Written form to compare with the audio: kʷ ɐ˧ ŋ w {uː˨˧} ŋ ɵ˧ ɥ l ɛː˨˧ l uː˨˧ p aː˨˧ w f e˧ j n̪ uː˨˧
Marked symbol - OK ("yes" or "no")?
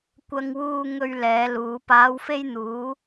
no